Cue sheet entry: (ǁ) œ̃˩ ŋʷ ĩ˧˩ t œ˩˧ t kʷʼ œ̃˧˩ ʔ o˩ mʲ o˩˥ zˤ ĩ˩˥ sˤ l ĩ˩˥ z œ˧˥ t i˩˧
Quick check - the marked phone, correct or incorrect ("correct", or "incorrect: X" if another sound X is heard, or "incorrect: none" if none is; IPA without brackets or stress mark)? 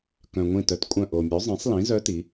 incorrect: k